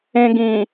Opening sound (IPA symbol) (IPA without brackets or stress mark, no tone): ẽ